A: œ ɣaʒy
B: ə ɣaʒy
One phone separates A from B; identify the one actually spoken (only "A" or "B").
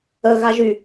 B